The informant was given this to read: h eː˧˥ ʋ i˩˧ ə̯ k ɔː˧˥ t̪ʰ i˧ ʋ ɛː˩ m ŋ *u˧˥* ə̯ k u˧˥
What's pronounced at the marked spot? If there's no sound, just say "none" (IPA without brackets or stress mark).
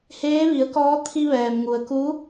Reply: u˩